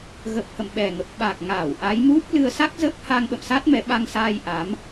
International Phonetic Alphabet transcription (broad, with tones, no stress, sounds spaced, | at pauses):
ɣ ə˨˩ p̚ h ə̰˧˨ m ɓ ɛ˨˩ ŋ ə˨˩ p̚ ɓ aː˨˩ k̚ ŋ aː˧˩ w ʔ a˨˦ j m u˦˥ p̚ l ɨ˧ ə̯ s a˦˥ k̚ z ə˦˥ p̚ h a˧ ŋ ɓ ə̰˧˨ m s a˦˥ t̚ m ɛ˨˦ ɓ a˧ ŋ s aː˧ j ʔ a˨˦ m